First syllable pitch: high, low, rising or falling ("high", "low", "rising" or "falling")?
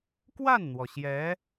falling